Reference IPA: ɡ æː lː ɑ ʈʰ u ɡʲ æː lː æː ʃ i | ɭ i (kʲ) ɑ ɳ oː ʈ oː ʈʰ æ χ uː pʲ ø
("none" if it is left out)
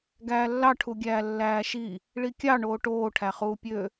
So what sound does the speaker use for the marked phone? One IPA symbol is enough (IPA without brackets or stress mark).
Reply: kʲ